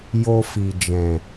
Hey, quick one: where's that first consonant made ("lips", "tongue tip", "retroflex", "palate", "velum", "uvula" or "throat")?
palate